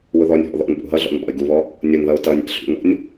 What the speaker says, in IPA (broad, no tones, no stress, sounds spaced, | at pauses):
w ʊ ð ɔ nʲ ɦ ɔ̰ ð ɔ̰ n ɓ ṵ ɦ ʌ ɮ ɔ̰ n ɓ ɔ̰ ɪ̯ ɡ u β ɔ | nʲ ʊ n ð ʌ ʊ̯ t ʌ nʲ æ̰ ɬ ṵ n ɔ̰ nʲ